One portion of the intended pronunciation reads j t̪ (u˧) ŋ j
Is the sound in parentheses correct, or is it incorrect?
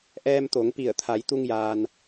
correct